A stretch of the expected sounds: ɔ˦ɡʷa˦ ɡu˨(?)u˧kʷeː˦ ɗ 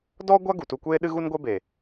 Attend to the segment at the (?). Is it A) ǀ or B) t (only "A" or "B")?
B